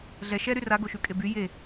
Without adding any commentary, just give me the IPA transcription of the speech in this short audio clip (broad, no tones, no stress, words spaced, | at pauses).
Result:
ɮɛ ʃɛɾy raɡoʃʉkʼe by je